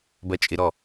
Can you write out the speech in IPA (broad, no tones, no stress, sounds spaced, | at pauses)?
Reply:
b ɜ t͡ʃʼ ɪ ɾ ɔ